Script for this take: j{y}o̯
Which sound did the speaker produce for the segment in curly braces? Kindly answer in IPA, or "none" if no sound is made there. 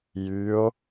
y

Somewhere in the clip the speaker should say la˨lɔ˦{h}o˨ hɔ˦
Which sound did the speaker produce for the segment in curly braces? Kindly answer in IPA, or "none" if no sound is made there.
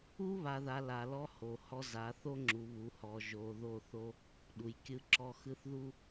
h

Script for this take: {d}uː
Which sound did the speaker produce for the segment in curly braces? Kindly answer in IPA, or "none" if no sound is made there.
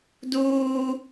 d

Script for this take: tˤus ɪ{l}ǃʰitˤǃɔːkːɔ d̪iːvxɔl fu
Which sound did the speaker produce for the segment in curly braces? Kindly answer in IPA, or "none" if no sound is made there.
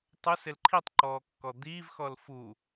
l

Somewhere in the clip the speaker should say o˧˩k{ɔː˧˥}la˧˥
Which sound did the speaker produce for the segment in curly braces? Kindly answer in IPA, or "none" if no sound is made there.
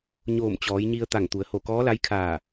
ɔː˧˥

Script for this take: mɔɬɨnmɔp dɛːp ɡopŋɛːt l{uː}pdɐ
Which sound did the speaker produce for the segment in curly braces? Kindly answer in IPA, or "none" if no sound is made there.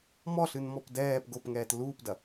uː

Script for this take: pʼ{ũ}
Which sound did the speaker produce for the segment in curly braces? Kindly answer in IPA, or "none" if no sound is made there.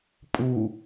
u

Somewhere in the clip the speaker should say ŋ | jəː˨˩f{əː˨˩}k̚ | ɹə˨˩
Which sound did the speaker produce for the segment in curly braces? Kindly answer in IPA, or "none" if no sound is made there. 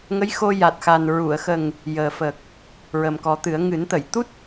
əː˨˩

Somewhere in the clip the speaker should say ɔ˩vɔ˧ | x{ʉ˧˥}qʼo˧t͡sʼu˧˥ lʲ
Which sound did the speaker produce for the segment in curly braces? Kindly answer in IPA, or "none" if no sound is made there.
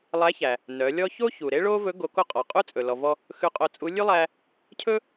ʉ˧˥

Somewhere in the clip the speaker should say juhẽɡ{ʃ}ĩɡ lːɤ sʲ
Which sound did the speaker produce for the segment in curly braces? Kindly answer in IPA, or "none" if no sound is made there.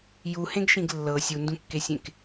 ʃ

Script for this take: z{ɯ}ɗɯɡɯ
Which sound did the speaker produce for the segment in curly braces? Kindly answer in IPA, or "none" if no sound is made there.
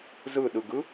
ɯ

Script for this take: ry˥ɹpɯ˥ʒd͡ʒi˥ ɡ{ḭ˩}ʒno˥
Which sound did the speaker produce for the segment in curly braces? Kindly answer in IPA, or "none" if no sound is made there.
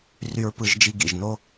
ḭ˩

